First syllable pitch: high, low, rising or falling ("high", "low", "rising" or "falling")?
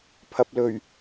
low